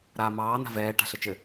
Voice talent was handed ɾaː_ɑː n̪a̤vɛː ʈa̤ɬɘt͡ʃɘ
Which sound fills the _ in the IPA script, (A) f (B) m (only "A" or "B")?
B